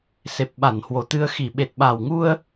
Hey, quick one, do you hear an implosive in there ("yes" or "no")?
yes